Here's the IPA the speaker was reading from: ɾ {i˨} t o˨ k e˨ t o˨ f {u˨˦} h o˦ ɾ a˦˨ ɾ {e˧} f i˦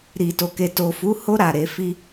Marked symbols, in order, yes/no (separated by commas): yes, yes, yes